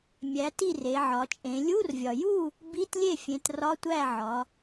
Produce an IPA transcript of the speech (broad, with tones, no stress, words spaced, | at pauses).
mʲæ˩˧ ti˥˨re˩˧ʕɒ˩˧t͡ʃʼẽ˩˧ lʲu˧˥˧rvʲɒ˩ ju˥˨ | bi˧˥˧tlʲe˥˨fʲẽ˩˧t rɒ˧˥˧tʷæ˥˨ʕɒ˩˧